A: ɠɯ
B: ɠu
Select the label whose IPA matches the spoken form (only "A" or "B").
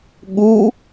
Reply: B